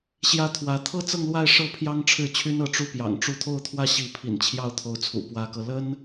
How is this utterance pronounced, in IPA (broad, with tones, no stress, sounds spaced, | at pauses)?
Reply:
ɕ j ä˥ t̪ʰ w ä˧˥ t̪ʰ ɤ˥ t͡s ɤ˥˧ ŋ l w a˥˧ ɪ̯ ʂ ɤ˥˩ pʰ j ɑ˥ ŋ ʈ͡ʂʰ ɻ̩˥˩ t͡ɕʰ y˥ n ɤ˧˥ ʈ͡ʂ u˥ p j ɑ̰˨˩ ŋ ʈ͡ʂ u˥˧ t̪ʰ o˥˧ ʊ̯ t̪ʰ w ä˥˩ ɕ i˧˥ pʰ ḭ˨˩ n t͡ɕʰ j ɑ˥˩ ʊ̯ t̪ʰ o˧˥ ʊ̯ t͡sʰ ṵ˨˩ p w ä˧˥ k ɤ˧ l ə˥ n